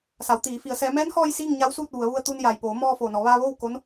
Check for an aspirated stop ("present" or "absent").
absent